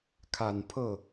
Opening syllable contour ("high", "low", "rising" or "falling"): low